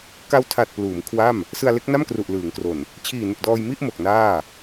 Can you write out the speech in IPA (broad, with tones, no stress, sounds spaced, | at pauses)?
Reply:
k a˦˥ w tʰ a˨˩ t̚ p l uː˩˦ m kʰ w a˥˩ m | s ɯ˧ a̯ l e˦˥ k̚ n a˥˩ m k r u˨˩ ʔ l ɯː˩˦ ŋ k r o˨˩ n | t͡ɕʰ iː˨˩ n u˨˩ k̚ d ɔː˧ j m i˥˩ ʔ m o˨˩ k̚ n aː˥˩